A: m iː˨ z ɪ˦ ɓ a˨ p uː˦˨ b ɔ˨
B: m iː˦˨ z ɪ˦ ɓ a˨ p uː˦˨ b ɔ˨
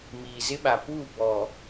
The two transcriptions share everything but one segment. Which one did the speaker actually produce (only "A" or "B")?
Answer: A